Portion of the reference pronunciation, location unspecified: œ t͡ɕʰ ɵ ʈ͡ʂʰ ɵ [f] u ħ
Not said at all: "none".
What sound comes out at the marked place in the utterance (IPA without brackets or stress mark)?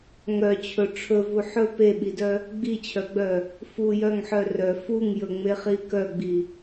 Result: v